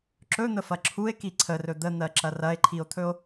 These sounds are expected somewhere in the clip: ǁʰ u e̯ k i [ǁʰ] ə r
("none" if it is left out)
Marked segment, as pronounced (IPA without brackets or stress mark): ǀʰ